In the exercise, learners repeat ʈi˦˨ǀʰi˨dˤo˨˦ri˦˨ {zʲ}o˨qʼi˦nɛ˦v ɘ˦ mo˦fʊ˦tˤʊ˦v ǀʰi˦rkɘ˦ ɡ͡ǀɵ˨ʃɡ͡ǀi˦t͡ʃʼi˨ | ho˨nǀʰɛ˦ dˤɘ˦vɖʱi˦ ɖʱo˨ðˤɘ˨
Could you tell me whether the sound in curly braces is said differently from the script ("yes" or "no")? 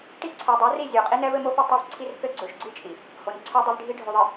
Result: no